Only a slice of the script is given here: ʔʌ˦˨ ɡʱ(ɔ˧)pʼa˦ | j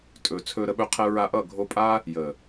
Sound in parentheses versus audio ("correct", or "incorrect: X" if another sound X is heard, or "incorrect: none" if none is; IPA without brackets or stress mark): incorrect: o˧